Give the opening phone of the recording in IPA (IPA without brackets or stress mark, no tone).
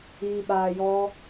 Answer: iː